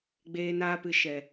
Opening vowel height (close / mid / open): mid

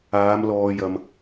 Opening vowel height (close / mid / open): open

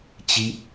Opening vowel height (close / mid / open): close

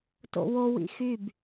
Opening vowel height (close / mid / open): mid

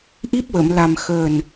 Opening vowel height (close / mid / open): close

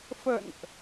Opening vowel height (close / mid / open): mid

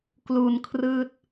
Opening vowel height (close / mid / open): close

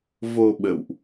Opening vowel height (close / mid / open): mid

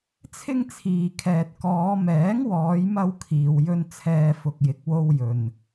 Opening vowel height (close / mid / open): close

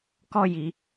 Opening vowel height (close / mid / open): mid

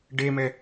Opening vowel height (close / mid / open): mid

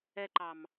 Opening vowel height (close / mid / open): mid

